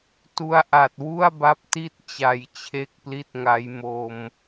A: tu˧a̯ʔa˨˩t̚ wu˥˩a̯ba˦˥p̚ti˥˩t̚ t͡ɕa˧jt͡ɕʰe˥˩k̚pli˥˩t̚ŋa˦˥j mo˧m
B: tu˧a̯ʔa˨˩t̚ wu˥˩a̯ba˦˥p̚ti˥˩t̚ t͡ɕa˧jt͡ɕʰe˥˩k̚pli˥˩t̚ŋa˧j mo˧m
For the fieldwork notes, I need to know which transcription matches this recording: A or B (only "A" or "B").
A